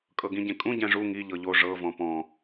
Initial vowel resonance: oral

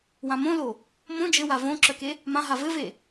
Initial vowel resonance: nasal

